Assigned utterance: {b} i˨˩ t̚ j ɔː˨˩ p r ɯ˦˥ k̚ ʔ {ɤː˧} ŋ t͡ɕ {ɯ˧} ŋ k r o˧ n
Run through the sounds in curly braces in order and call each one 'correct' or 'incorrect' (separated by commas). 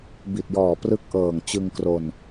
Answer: correct, incorrect, correct